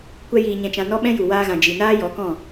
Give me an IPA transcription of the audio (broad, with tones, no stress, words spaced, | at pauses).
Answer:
kʷɛ˦jiː˧ɲɛ̃˧t͡ʃã˧ nɔ˦ɓɛ̃˦ju˨ waː˧ɣã˨ d͡ʒi˨naː˦ jɔ˨˦kɔ̃˦˨